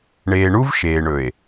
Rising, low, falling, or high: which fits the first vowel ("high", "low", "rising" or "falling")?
low